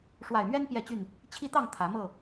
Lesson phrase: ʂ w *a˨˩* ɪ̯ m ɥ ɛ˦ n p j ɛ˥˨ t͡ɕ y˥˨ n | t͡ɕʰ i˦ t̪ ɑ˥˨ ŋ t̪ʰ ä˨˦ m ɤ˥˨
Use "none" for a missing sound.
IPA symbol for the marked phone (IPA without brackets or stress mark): a˨˩